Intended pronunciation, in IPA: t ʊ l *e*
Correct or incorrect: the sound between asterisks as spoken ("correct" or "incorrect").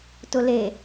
correct